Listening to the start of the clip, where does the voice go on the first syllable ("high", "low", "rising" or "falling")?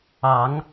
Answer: rising